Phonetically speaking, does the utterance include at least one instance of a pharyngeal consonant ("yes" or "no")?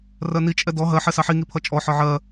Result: yes